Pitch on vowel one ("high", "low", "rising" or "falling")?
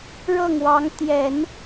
falling